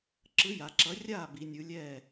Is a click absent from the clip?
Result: no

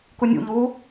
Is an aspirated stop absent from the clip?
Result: yes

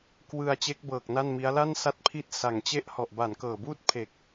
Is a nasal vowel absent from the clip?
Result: yes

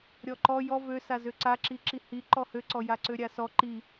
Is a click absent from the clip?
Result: no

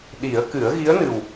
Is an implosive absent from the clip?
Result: no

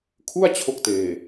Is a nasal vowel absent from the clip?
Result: yes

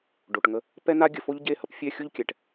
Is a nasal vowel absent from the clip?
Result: yes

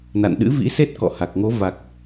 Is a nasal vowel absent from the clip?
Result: yes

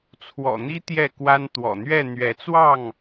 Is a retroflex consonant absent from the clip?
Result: yes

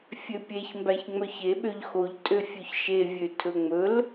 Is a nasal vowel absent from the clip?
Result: yes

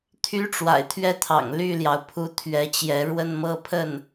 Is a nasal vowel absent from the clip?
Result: yes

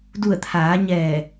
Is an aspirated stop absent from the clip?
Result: no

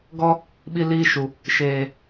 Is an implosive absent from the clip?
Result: no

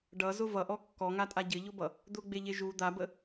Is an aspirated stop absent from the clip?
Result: yes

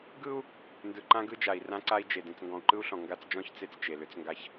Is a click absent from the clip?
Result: no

